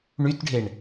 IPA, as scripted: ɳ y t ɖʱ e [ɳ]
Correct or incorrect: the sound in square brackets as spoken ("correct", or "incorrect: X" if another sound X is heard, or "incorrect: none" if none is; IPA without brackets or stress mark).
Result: correct